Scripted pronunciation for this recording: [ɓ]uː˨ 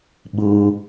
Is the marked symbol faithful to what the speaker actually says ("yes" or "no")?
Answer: yes